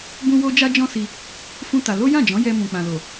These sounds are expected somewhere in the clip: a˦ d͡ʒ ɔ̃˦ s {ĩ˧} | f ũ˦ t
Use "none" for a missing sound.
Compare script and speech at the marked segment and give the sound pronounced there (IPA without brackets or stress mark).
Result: i˧